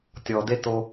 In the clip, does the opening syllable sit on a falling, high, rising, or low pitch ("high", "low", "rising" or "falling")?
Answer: low